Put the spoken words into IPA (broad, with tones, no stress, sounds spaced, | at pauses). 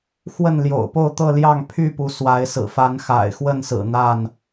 x w ə˥˨ n l j o̰˨˩ ʊ̯ p o˥˨ ʊ̯ t̪ ɤ˥˨ l j ɑ˥˨ ŋ pʰ y˥˨ p u˨˦ s w a˨˦ ɪ̯ s ɹ̩˨˩ f a˨˦ n x a̰˨˩ ɪ̯ x w ə˥˨ n s ɹ̩˨˩ n̪ a˥˨ n